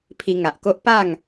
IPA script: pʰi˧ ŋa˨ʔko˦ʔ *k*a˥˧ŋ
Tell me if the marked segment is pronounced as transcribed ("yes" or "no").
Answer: no